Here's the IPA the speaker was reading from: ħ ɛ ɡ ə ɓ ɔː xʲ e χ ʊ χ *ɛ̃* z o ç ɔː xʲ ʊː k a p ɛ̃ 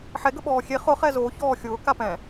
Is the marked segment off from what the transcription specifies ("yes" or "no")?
yes